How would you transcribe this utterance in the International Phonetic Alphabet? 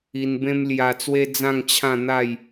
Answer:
i˧ n b ẽ˦ m l j a˧ t͡s w e˦ d͡z ã˥˧ ŋ t͡ɕʰ ã˥˧ n̪ a˥˧ j

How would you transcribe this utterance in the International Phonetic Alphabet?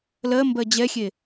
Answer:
l ɜ m b ɜ d͡ʑ ɛ xʲ e

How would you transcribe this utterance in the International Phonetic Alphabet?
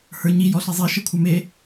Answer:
h ə˞ ɲ i j ɔ ɬ i zˤ i ʃ ə kʷʰ ə˞ m e

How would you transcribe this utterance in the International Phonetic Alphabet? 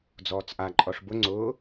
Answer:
d͡z ɔː t͡s ʔ a ǃʼ ɔ ʂ b ʊ ŋ͡ǀ ʊː

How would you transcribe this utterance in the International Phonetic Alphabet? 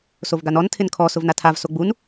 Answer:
s o v ɡ a n ɔ n tʰ ɪ n kʰ ɔ s ʊ v n a tʰ a v s o ɡ͡b u n

